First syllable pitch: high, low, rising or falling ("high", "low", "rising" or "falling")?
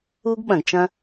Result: high